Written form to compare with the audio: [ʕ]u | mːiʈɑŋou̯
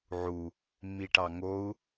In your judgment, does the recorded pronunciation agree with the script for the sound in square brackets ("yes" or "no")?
yes